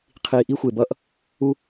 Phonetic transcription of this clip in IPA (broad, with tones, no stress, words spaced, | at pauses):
qʰiː˧ʔi˥xʷe˧bʌː˥ʔ | u˥